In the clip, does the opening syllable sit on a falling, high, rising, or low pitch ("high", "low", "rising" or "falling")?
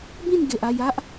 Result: falling